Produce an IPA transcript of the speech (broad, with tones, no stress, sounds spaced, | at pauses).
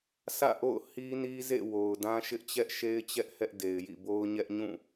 sʰ ä̰˦˨ ʔ o̰˦˨ ʊ̯ h i˦ n i˦ z ḛ˦˨ w o˨ ʊ̯ d ã˦ ʃ ɪ˦ ʔ t͡ɕ ɛ˦ ʔ ʃ e˦ ɪ̯ t͡ɕ ɛ˦ ʔ h ɛ˦ ʔ d e˨ ɪ̯ j ḭ˦˨ b o˦ ʊ̯ ɲ ɛ˦ ʔ ɲ ũ˦˨